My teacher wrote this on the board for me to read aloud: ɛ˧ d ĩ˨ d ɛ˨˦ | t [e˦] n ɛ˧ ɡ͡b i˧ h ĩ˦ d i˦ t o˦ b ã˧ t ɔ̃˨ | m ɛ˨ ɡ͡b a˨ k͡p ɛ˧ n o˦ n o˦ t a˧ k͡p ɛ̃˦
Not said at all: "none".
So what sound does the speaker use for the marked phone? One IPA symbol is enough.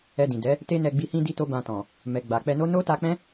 e˦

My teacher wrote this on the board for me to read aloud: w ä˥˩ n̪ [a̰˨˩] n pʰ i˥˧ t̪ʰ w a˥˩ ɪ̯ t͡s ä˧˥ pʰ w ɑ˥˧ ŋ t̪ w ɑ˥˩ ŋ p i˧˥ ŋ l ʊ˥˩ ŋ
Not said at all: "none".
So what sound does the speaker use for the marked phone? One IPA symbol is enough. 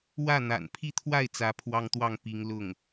a̰˨˩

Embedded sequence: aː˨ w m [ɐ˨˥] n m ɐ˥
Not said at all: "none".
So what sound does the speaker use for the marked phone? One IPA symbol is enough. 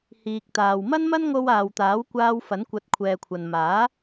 ɐ˥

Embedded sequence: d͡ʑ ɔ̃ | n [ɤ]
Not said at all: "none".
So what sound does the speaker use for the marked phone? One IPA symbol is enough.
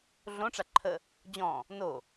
o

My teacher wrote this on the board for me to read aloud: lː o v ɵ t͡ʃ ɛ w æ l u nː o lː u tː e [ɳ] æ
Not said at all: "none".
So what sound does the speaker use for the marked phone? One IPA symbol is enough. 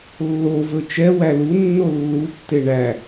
ɳ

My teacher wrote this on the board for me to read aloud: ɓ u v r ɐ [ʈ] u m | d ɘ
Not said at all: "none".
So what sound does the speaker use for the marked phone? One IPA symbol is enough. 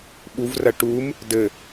ʈ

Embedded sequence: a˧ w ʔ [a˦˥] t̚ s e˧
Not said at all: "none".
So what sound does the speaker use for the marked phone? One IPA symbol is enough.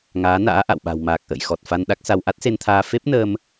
a˦˥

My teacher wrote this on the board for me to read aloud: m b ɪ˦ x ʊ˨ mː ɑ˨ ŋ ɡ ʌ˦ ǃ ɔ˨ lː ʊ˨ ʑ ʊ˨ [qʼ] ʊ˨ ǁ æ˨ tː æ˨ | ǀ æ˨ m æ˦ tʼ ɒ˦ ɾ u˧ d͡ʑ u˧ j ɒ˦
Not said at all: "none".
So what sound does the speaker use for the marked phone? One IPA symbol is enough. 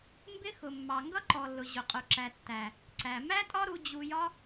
qʼ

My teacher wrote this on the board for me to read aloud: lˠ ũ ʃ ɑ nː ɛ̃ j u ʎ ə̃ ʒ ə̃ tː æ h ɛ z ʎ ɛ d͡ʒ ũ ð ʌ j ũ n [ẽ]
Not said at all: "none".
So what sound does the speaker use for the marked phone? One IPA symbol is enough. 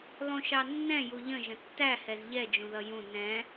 ɛ̃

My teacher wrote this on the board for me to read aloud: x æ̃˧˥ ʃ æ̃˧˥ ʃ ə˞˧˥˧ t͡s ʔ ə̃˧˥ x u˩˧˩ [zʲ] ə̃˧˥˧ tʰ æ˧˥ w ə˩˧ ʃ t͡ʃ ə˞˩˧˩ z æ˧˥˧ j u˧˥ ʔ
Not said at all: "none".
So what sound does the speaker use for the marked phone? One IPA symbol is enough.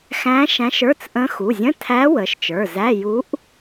zʲ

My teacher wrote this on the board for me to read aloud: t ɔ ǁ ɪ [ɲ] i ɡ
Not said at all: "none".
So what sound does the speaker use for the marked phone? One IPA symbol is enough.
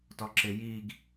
j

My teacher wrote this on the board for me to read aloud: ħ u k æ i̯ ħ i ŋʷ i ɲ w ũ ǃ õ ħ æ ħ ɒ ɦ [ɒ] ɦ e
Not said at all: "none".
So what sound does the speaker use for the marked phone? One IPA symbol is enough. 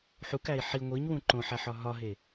ɒ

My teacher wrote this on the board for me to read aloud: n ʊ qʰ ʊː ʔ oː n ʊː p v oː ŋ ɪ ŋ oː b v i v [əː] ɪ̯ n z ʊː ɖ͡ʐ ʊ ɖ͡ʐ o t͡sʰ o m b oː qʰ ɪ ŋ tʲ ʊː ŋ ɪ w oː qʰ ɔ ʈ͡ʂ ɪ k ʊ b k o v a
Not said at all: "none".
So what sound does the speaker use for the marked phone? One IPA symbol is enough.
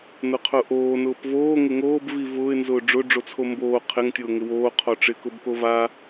ʊː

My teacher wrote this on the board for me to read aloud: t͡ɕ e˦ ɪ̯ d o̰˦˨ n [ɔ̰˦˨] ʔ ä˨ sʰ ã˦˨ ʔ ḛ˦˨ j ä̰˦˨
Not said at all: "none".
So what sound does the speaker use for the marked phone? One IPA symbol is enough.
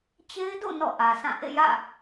ɔ̰˦˨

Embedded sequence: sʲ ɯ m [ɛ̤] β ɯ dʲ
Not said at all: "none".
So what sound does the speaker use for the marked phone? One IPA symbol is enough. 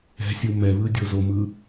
ɛ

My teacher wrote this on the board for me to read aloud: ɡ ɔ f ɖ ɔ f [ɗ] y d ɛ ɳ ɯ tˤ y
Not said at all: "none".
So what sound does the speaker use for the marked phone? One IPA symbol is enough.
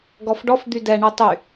d̪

